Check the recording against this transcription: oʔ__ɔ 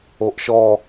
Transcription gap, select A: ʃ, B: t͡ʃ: A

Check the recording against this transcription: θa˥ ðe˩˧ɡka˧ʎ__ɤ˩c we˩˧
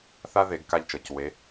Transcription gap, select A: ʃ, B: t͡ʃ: B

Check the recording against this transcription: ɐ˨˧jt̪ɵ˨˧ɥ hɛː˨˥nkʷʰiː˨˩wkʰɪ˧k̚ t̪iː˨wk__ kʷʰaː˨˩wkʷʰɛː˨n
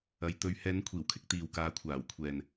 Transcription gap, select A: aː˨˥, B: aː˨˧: A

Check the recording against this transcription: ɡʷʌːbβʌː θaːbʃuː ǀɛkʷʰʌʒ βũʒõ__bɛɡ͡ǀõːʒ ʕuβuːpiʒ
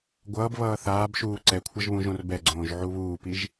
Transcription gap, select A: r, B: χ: A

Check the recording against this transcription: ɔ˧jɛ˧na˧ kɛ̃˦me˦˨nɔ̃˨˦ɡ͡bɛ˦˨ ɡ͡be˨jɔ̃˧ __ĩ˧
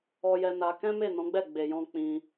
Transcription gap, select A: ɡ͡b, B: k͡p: B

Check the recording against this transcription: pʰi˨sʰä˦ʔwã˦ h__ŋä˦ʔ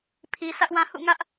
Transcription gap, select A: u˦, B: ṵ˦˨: B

